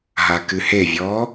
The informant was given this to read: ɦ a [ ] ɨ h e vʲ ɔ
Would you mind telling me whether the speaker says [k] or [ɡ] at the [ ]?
k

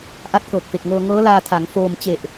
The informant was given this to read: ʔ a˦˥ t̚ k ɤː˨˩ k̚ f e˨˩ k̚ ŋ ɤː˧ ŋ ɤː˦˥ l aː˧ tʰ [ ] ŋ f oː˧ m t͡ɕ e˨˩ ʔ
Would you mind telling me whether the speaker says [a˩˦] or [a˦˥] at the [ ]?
a˩˦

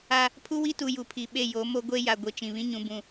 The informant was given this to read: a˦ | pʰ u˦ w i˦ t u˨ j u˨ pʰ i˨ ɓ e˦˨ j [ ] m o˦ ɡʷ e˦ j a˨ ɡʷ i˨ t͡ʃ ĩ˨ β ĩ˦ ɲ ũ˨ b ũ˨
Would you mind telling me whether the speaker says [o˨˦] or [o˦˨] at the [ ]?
o˨˦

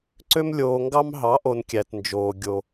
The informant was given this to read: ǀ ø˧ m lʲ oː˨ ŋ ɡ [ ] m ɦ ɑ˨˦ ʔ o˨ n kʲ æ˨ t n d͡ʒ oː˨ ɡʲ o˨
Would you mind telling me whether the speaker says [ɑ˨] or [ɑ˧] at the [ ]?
ɑ˧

